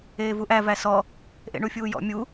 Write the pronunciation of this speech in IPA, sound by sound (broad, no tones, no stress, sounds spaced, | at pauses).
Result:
eː v u ʔ æ v æ s ɔ | ʔ ḛ ɳ u fʲ uː j ɔ̰ mʲ u